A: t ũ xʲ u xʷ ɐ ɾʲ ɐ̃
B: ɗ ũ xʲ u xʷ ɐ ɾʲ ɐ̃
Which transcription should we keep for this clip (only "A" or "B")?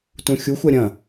A